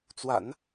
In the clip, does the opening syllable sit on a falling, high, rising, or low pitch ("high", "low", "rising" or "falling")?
low